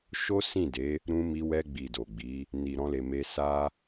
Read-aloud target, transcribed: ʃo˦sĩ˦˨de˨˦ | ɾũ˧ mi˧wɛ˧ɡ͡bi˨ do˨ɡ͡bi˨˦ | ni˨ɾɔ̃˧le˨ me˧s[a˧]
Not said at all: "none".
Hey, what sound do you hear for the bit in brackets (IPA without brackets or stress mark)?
a˦